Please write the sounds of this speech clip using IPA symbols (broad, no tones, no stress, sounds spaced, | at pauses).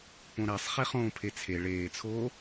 p õ ɾ æ sˤ χ e χ õː pʰ e t͡sʰ e ɭ eː t͡sʰ oː